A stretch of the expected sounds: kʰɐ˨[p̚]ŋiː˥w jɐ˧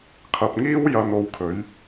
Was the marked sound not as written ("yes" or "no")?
no